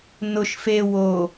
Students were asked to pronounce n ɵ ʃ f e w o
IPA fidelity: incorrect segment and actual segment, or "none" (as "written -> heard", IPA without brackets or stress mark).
ɵ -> ʊ